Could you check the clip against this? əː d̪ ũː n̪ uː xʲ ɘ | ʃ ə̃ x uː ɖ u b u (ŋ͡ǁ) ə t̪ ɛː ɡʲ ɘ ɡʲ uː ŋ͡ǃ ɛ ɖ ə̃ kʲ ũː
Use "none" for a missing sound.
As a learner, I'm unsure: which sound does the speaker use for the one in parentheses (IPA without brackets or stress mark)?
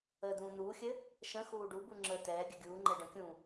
ŋ͡ǁ